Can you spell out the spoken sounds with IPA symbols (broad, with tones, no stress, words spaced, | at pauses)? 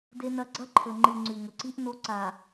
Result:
de˦nɐ˦ ɡ͡ǀɐ˦ǃʰɵ˨ ŋ͡ǃɨ˨ ŋ͡ǀʉ˨ŋɵ˨ǀi˦ʔ no˦ǀa˨